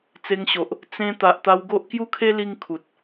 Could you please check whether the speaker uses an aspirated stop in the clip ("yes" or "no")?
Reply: yes